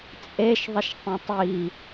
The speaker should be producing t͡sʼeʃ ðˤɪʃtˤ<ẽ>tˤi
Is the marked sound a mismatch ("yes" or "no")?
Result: no